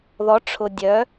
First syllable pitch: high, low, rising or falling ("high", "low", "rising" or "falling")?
rising